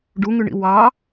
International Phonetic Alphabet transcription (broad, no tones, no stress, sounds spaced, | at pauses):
ɖ u ŋ ʉ ɳ ḭ w ɑ